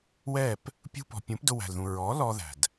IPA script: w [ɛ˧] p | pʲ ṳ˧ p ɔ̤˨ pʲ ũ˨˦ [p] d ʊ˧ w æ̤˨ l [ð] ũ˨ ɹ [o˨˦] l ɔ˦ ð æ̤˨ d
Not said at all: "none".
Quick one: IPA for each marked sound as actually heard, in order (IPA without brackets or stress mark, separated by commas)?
ɛ˦˨, p, ð, ɔ˨˦